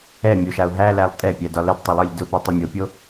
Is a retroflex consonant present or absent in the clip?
absent